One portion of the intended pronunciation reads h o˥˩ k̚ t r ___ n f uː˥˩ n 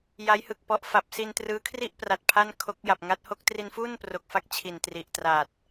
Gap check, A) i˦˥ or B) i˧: B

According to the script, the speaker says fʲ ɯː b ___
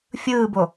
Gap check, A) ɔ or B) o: B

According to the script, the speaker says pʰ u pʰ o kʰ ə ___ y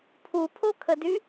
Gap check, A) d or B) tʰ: A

